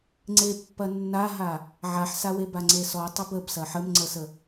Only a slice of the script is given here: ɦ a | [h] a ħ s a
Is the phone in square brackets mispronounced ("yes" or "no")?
yes